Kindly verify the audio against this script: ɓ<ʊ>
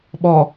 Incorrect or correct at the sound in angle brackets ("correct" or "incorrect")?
incorrect